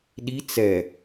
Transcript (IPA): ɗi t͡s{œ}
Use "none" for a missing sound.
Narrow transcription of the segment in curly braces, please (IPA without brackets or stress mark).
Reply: ɛ